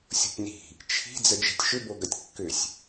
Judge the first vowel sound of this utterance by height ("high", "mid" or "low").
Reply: mid